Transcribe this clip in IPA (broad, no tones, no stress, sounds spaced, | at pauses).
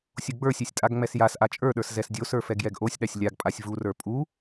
sʲ o ɡ͡b ə˞ sʲ ɛ sʲ tʼ a ɡ ŋ͡m ɛ s j a s ʔ a t͡ʃʼ ə˞ ɗ ə˞ s z ɛ s dʲ o s ə˞ f ɛ ɡ j ɛ ɡ ʔ o sʲ ɗ a sʲ lʲ a ɡ pʼ a sʲ v u r ə˞ pʼ u